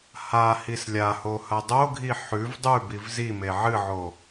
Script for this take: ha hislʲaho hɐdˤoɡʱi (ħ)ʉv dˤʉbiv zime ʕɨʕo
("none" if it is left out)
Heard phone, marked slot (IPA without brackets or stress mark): ħ